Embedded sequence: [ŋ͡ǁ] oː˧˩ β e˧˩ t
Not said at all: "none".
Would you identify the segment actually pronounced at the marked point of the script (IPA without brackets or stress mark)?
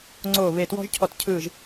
ŋ͡ǀ